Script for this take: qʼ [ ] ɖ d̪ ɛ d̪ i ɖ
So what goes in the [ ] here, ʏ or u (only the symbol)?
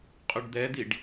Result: ʏ